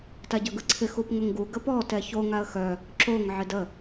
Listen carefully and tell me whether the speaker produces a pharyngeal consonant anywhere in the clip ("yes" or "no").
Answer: yes